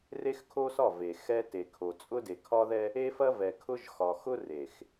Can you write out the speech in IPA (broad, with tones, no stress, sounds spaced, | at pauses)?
r e˦ x kʰ o˦ s ɒ˦˨ v e˨ x ɛ˦ t e˨ kʰ o˨ t͡sʼ ʊ˦ d e˨ kʰ ɒ˦ ð ɛ˦ | e˦ f ɐ˦ v ɛ˨ kʰ ʊ˦ ʒ x ɒ˨ x ʊ˦ r e˨ x